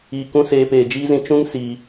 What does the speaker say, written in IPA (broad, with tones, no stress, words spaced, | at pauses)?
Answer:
iː˧kũ˦ seː˧peː˨d͡ʒiː˦zĩ˧ t͡ʃũ˦ŋ siː˧